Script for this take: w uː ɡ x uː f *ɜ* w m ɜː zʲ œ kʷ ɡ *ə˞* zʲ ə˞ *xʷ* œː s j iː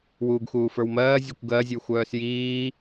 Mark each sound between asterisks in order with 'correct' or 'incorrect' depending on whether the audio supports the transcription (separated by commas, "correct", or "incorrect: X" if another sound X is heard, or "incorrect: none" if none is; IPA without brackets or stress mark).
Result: incorrect: ə˞, incorrect: ɜ, correct